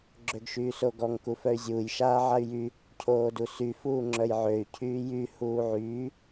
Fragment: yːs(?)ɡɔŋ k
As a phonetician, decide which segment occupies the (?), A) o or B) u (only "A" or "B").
A